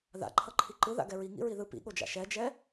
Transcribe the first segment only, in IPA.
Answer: ð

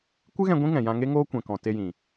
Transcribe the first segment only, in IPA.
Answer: kʷ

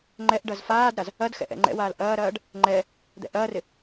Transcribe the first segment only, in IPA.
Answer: ŋ͡ǃ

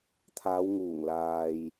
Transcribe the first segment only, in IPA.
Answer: t̪ʰ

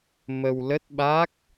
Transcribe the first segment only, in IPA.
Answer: m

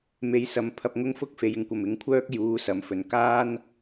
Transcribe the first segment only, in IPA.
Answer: m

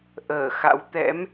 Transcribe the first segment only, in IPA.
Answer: ʔ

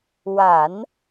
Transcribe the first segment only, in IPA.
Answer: w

